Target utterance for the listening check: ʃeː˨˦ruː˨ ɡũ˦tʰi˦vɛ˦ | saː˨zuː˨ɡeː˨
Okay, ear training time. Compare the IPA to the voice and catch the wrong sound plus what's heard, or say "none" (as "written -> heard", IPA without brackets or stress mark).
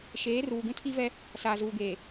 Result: none